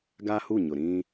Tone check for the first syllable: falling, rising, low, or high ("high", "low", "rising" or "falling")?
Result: high